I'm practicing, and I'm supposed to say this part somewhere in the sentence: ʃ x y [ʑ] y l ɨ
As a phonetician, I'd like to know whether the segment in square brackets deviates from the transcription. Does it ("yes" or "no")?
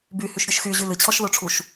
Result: no